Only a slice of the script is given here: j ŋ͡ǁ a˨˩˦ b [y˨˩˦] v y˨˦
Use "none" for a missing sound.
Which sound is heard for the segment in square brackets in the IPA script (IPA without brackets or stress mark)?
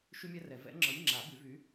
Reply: y˨˩˦